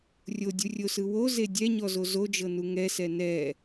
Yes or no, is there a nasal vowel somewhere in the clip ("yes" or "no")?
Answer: no